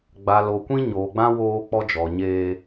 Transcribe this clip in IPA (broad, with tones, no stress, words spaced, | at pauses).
ɡ͡ba˨lo˨ kʷĩ˦ ɲoː˨ɡ͡bã˦ woː˦ k͡pɔ˦d͡ʒɔ˨ɲeː˦